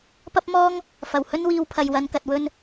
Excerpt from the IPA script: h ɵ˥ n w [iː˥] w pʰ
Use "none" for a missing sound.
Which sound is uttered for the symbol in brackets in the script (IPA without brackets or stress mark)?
iː˧